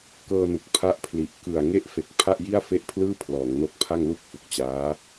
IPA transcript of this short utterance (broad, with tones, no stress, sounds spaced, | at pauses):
k ɤː˧ n u˨˩ k̚ pʰ a˦˥ ʔ pʰ l i˨˩ ʔ k ɯ˨˩ a̯ ŋ e˦˥ ʔ f e˨˩ k̚ pʰ a˥˩ ʔ j i˥˩ a̯ f e˥˩ ʔ pʰ l ɯː˥˩ pʰ l ɔː˩˦ ŋ n o˦˥ k̚ pʰ a˥˩ ŋ l u˥˩ k̚ f u˨˩ k̚ t͡ɕ aː˦˥